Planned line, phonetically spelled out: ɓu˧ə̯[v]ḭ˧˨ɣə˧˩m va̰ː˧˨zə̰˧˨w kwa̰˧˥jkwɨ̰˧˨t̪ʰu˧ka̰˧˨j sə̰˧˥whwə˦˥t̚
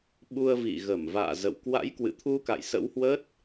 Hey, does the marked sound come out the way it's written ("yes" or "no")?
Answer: yes